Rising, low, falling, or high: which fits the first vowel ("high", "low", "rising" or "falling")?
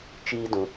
high